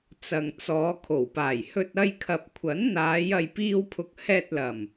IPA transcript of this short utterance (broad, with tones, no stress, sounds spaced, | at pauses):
t͡s ɐ˨ ŋ t͡s ɔː˨˧ kʰ o˨˩ w p aː˨˩ j h ɵ˧ t̚ ɐ˧ j kʰ ɐ˨ p̚ kʷʰ ɐ˨˥ n n̪ aː˨˧ j ɐ˨ j p iː˧ w pʰ ʊ˨ k̚ h ɛː˧ t̚ l ɐ˨˩ m